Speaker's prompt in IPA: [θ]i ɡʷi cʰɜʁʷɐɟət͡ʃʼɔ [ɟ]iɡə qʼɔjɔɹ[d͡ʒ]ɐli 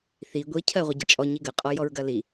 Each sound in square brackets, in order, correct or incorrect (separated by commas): correct, incorrect, incorrect